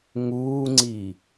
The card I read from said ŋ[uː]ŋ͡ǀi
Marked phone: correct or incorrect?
correct